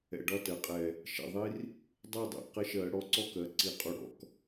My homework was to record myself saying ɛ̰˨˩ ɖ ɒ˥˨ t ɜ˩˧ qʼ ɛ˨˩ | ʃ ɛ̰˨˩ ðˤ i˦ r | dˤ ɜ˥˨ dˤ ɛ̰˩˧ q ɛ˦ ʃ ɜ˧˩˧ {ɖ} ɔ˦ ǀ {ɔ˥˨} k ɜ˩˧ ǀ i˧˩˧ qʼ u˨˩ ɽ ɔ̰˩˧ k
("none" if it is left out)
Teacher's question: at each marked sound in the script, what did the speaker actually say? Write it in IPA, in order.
ɽ, ɔ˥˨

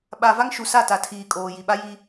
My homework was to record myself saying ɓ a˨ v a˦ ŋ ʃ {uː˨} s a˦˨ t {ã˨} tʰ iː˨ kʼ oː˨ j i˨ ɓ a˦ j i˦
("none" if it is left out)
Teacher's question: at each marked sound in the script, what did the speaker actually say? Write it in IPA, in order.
u˨, a˨

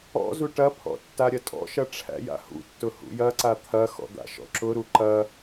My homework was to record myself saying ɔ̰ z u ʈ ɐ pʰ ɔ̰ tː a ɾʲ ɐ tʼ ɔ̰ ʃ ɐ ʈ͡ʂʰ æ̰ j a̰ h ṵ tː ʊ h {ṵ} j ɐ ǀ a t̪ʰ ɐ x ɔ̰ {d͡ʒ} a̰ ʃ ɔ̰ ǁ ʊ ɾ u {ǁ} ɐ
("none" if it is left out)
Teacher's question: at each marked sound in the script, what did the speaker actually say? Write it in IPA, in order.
ṵ, d̪, ǃ

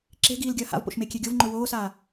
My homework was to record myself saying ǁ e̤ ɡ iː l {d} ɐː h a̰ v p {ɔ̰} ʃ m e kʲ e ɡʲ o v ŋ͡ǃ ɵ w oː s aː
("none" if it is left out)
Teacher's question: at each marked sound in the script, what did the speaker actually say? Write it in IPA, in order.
ɡʲ, o̰

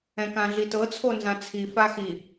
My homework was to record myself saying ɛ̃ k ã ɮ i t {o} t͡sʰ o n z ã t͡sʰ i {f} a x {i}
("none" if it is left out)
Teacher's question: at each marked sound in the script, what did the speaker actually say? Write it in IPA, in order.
ɤ, f, i

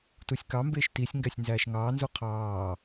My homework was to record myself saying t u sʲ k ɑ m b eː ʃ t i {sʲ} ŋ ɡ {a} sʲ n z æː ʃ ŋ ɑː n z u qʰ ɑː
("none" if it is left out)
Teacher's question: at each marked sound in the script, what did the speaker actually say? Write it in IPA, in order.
sʲ, æ

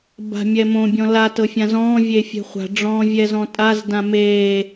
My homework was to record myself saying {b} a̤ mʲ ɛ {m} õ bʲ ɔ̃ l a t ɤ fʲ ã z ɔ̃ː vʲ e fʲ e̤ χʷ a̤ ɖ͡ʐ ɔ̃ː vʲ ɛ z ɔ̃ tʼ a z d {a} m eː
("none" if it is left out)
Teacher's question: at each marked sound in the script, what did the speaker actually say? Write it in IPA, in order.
b, m, ã

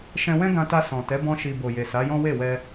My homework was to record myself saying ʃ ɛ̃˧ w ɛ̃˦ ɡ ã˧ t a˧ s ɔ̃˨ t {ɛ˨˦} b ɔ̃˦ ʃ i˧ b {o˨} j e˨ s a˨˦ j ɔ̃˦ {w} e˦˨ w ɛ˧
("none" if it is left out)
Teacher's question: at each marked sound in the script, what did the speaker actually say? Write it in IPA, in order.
ɛ˨˦, o˨, w

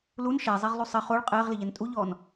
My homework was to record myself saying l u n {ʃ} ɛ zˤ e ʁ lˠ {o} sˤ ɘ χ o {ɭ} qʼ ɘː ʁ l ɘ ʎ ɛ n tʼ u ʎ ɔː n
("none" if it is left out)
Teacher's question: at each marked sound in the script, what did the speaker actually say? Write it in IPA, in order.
ʃ, u, ɭ

